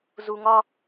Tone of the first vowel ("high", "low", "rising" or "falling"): high